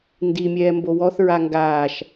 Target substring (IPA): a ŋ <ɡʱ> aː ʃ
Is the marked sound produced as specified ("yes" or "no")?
no